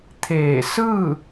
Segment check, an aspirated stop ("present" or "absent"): present